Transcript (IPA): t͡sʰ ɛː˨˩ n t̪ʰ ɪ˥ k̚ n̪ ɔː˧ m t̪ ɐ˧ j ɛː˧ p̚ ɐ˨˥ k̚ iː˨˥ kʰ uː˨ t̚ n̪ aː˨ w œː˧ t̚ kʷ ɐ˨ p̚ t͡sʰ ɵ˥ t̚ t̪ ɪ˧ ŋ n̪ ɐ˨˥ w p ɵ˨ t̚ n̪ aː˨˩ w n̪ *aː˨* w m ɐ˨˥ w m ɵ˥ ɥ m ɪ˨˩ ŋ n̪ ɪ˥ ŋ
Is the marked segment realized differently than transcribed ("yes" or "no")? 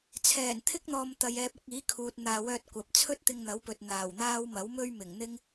yes